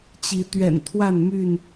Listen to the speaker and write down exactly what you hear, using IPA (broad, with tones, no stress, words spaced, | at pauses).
t͡ɕi˨˦ t̪ɥɛ̰˨˩nt̪ʰwa˥˨nmy˥˨n